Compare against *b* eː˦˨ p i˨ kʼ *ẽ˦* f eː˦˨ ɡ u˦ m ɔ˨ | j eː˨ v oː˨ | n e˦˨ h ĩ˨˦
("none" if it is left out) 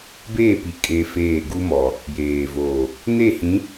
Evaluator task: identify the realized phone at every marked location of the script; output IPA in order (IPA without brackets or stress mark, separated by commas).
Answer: b, e˦